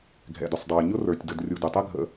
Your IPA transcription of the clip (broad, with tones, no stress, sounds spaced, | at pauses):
ɡʱ ɛ̰˩ d ʊ˩ sˤ dˤ ə˞˩ ɲ ʊ˥ r ə˞˩ tʲ d ə˨ d rʲ u˨ d ʊ˩ tˤ ɘ˥ ɡʱ ə̰˨